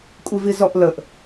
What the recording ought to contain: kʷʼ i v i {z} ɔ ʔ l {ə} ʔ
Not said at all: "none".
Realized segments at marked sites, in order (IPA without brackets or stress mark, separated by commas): z, ə